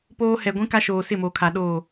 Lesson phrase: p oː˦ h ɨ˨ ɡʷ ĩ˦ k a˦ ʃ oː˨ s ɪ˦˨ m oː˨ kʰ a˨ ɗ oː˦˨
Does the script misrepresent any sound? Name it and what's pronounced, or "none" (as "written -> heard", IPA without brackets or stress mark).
ɨ˨ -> ɛ˨